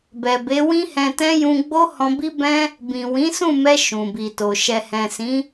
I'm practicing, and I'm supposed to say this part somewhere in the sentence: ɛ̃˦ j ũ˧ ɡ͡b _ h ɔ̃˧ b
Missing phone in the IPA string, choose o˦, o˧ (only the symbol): o˦